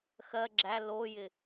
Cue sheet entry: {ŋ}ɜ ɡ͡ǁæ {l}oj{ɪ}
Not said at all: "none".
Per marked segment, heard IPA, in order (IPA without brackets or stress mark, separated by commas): x, l, ɪ